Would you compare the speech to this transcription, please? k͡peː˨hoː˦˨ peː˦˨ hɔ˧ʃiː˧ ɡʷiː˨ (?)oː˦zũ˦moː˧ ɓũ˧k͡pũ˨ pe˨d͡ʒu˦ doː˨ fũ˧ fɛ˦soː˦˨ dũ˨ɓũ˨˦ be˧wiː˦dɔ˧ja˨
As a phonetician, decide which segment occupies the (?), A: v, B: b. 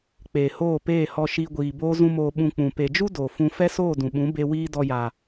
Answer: B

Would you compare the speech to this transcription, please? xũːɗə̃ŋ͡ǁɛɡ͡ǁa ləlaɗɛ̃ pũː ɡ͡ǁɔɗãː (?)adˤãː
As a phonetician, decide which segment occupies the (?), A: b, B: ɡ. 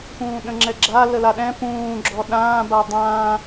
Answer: A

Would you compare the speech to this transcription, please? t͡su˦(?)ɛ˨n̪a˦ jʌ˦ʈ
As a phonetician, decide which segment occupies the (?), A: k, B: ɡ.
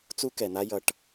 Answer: A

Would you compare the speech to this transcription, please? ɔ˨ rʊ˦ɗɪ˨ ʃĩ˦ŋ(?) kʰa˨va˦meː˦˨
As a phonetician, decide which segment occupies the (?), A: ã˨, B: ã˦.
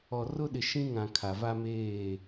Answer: A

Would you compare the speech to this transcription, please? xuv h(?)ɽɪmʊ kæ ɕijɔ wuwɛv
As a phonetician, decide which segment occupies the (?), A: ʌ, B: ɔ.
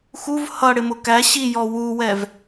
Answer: A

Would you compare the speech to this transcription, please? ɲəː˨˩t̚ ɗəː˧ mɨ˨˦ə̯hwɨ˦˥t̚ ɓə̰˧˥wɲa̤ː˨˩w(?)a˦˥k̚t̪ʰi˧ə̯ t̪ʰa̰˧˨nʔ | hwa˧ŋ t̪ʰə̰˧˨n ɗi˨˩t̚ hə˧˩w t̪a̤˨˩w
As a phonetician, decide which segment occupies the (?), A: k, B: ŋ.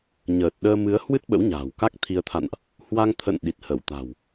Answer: A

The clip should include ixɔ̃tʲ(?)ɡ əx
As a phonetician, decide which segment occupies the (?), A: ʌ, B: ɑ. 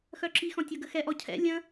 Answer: A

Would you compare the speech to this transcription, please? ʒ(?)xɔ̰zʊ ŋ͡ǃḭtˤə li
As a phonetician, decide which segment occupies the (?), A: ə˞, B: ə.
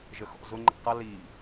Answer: B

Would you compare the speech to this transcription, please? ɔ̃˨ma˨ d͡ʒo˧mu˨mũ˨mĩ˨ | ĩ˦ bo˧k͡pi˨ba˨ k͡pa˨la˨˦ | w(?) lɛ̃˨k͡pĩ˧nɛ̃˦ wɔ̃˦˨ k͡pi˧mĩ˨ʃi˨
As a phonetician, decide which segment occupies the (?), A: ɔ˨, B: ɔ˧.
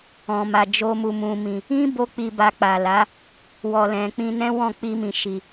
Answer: A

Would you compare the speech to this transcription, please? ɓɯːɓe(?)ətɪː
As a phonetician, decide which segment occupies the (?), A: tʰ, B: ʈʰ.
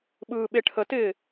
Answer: B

